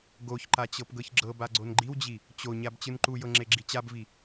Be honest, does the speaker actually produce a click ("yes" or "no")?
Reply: yes